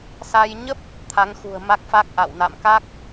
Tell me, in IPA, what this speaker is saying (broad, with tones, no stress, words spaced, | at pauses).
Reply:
sa˧j ɲə˦˥p̚ | t̪ʰa˨˦ŋxṳ˨˩ə̯ ma˦˥k̚fa˦˥k̚ʔa̰˧˨w na̰˧˨mka˦˥k̚